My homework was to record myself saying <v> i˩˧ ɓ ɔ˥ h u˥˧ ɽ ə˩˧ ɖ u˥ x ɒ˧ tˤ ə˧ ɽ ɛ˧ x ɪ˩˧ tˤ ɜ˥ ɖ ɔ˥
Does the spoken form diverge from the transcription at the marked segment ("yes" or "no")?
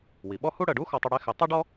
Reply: yes